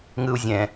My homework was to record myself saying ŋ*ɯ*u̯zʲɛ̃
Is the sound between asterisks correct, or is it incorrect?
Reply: correct